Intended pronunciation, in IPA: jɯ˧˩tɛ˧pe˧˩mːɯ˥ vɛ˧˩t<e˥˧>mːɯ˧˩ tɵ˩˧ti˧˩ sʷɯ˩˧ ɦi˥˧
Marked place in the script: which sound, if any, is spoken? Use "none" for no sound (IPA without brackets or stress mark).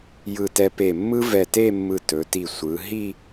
e˥˧